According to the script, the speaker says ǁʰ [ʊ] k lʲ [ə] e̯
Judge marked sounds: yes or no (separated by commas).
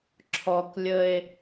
no, yes